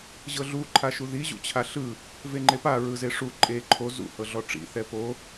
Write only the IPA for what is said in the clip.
ʑ ɤ ɮ u ǃʰ a ʃ u ð i ʑ ṵ t͡ɕʰ a ɬ ɯ | v e ŋ͡ǃ e p a ɹ ɯ z e ʂ u ǃʼ e ǃʰ o z ṵ h ɤ ɮ ɔ ʈ͡ʂ ḭ θ ɛ p o

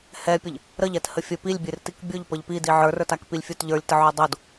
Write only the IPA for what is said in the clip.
h ɛ pʲ ə ʎ | ɾ ə ʎ ɛ t h ə fʲ ə p i lʲ bʲ e r t i k bʲ o ʎ p ə ʎ p i d i ʕ ə˞ r ə˞ t a k p i lʲ fʲ o t ʎ ə˞ lʲ t ə ʕ o dˤ o d

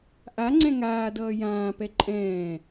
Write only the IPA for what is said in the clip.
ʔ a ŋ͡ǀ ɛ̃ ŋ aː d ʌː j ãː p ɛ ǃʼ ɛ̃ː

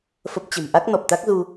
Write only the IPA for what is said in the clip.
f ə˦˥ p̚ t͡ɕ ə̤˨˩ m ʔ a˦˥ k̚ n ɔ˨˩ p̚ t̪ a˦˥ k̚ z u˧

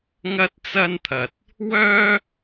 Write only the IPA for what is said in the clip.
ŋ ɐ˥ t̚ t͡s ɐ˥ n t̪ʰ ɐ˨ t̚ | w œː˥

